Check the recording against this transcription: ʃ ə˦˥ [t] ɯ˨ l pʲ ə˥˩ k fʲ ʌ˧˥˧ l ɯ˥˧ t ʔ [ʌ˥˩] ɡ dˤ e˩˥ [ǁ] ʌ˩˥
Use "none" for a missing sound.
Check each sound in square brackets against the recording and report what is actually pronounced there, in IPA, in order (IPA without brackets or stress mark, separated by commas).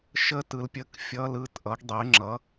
t, ʌ˩˥, ŋ͡ǁ